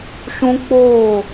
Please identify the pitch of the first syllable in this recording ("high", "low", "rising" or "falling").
high